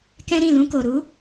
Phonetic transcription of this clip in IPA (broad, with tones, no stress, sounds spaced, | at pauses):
k ɛ̃˦ ɾ ĩ˦˨ l ũ˧ k o˨ ɾ u˨˦